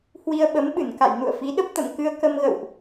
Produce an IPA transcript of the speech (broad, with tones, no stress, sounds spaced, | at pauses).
h w i˧ ə̯ ɓ ə˨˦ m ɓ ɨ˧˩ n k a̰˧˨ j n ṵ˧˨ ə̯ f i˨˦ ɗ ə˦˥ p̚ t̪ ə̰˧˨ m k ɨ˧ ə̯ k ə˧ m ɣ ə̰˧˨ w ʔ